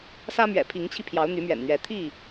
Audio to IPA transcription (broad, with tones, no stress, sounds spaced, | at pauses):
s ä˦ m ɥ ɛ̰˨˩ pʰ i˨˦ ŋ t͡ɕʰ i˧ pʰ j ɑ˨˦ ʊ̯ n̪ y˨˦ m ɥ ɛ̰˨˩ n n̪ ɥ ɛ˨˦ t̪ʰ i˥˨